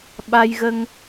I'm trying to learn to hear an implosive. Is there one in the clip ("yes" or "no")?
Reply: yes